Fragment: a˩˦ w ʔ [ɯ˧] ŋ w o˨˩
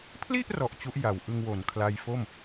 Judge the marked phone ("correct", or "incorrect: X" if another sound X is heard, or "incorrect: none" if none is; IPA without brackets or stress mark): correct